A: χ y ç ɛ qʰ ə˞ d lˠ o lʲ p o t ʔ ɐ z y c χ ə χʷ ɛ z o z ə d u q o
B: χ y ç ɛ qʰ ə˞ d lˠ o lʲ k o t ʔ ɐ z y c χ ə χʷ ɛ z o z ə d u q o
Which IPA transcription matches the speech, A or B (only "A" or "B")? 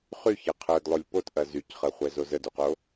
A